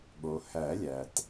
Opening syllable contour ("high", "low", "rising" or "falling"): low